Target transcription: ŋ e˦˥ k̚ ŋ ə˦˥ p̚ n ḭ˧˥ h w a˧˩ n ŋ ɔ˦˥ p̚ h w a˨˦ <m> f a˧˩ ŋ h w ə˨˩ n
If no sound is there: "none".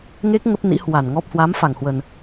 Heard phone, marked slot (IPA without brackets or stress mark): m